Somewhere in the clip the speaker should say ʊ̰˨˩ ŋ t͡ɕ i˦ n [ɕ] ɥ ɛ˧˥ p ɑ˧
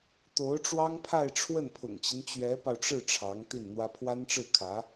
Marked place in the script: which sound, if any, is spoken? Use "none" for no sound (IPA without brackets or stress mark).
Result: t͡ɕ